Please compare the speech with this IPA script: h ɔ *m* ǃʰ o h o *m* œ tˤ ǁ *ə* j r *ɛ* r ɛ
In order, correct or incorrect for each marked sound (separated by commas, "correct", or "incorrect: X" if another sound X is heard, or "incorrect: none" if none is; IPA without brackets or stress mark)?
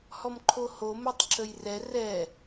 correct, correct, correct, correct